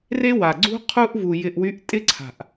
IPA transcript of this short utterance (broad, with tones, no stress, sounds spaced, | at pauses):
r e˦ w a˨ ɡ͡ǀ ṳ˦ qʰ u˦ ʔ v u˨ j ɪ˨ ʔ w y˨˦ ʔ tʼ ɪ˦ ǀʰ a̤˨ ʔ